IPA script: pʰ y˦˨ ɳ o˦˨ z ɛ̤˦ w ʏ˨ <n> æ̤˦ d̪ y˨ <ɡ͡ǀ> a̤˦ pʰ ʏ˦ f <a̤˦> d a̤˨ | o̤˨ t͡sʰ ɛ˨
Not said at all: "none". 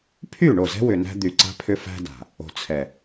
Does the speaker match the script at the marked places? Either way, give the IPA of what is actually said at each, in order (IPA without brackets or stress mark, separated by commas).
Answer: n, ǀ, æ̤˦